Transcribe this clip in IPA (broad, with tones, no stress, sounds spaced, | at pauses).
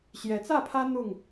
ɕ j ɛ˨˦ t͡s ä˥˨ pʰ ä˦ n̪ ʊ˥˨ ŋ